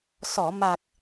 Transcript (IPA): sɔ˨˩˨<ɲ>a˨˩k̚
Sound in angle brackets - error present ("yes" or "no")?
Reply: yes